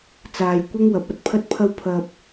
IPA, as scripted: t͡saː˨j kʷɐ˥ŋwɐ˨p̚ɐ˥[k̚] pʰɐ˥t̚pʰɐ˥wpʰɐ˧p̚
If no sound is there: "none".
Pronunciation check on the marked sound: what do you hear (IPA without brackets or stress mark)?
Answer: t̚